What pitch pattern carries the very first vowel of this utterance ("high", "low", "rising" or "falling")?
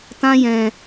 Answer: high